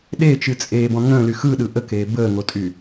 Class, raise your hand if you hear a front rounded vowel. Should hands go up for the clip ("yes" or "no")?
yes